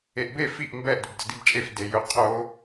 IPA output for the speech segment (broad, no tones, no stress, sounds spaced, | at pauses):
e ʔ b e f i ʔ m b ɛ ʔ d ɵ b d ə d i b t͡ʃʼ e f d e j ɵ qʰ o